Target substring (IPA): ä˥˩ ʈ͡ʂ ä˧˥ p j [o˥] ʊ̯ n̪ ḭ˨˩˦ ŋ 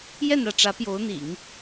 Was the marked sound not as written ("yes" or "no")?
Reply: yes